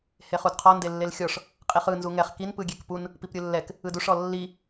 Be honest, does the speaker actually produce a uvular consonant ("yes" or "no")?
yes